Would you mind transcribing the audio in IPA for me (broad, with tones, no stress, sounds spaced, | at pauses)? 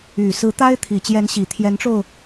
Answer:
y˨˩ s ɹ̩˧˥ t̪ a˥ ɪ̯ t̪ʰ i˨˩ t͡ɕ j ɛ˧˥ n ɕ i˨˩ t̪ʰ j ɛ˧˥ n ʈ͡ʂ o˧ ʊ̯